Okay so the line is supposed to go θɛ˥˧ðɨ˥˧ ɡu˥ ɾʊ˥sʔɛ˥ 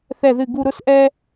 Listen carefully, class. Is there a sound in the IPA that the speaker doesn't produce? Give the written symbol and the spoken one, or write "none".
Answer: none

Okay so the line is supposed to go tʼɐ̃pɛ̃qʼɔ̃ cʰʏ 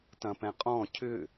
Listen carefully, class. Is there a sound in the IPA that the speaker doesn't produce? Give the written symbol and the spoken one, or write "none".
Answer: tʼ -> t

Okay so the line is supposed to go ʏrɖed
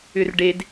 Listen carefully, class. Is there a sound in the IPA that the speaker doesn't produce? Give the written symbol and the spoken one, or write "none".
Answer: none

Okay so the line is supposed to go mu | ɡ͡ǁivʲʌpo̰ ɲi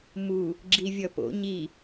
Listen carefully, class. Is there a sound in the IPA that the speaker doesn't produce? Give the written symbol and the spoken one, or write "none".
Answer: none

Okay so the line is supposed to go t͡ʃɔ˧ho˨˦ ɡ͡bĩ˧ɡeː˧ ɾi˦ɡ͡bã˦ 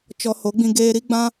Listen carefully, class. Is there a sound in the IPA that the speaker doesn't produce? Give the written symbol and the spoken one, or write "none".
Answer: none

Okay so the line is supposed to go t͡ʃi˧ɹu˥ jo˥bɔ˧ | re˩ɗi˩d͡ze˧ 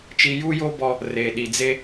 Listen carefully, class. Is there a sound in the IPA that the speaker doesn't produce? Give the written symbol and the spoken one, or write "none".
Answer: ɹ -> j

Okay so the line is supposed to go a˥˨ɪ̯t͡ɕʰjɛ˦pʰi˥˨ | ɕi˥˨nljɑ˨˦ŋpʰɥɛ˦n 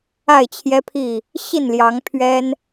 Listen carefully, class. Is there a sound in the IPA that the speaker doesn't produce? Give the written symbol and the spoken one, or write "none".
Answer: none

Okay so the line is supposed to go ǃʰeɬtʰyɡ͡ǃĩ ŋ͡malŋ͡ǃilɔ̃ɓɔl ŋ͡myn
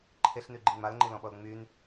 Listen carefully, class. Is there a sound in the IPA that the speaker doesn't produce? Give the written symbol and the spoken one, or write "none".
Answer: tʰ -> n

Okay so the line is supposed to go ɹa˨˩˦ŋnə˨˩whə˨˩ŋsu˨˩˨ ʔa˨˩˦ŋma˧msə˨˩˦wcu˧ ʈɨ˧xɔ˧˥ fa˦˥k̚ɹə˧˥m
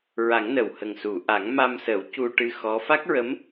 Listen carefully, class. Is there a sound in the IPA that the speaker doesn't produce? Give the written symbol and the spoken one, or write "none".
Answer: none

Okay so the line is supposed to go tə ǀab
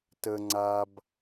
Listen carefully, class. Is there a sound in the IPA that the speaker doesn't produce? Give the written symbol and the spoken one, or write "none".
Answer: ǀ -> ŋ͡ǀ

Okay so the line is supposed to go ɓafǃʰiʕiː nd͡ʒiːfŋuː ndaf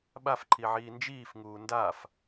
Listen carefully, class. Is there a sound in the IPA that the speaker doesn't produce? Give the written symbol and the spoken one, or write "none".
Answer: none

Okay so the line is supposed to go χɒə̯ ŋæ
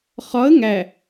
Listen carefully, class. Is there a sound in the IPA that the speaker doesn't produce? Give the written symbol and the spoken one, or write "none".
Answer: none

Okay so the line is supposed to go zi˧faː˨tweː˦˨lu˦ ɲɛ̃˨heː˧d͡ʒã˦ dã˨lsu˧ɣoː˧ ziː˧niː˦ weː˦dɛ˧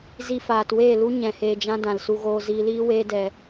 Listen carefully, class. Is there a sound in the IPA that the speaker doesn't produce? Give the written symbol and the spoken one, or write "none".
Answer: n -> l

